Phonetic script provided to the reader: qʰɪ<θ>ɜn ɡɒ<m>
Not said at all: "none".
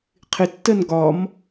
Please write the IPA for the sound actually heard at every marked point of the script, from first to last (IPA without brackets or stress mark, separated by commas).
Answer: tː, m